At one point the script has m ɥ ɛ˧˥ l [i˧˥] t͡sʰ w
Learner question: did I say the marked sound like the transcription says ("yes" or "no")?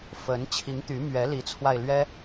yes